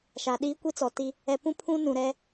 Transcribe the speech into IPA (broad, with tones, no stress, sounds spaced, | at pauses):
ʃ a˨ ɗ iː˦ kʷ i˦ t͡s ɔ˨ t i˦ | ɛ˨ p ũ˦ pʰ ũ˦ n ũ˨ ɾ ɛ˦